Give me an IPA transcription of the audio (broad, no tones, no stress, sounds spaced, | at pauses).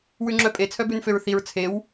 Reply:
w ʉ ŋ͡ǁ œ pʼ e t͡sʰ œ b ʉ n f ø ɹ θ i ɹ t͡sʰ e w